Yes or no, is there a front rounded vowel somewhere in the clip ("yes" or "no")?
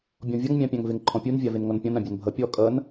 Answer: no